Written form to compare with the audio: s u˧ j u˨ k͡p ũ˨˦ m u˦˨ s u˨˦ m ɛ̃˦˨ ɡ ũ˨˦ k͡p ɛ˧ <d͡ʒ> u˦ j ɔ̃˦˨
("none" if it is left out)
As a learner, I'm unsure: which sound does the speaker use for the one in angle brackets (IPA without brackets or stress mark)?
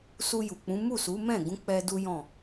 d